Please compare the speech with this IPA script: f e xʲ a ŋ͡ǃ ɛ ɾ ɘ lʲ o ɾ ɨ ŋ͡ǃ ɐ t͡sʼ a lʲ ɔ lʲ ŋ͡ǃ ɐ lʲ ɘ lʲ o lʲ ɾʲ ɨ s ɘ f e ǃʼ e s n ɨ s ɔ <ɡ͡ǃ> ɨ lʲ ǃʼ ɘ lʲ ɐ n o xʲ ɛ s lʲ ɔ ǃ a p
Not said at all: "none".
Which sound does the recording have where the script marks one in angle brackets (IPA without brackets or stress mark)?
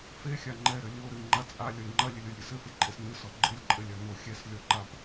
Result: ɡ͡ǃ